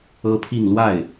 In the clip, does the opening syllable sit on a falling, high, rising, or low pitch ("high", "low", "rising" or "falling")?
high